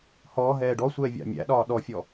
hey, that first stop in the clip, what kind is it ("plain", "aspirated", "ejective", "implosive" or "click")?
plain